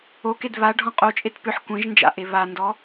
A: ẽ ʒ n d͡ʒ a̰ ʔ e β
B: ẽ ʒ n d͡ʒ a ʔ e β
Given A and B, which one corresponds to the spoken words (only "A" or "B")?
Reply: A